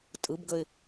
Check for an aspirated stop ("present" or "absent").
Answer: absent